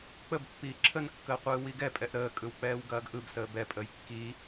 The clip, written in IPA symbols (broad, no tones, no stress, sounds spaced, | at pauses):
k͡p ə b pː iː ǁʰ ə n kː əː qʷ ɯː w i ɡ ɛ pʼ ɛ ʔ ɾ əː kʼ ɯ w k͡p ɛː w ɡ ɐː ɡ ʔ ɯ b s əː b ɛ pʼ əː j kː i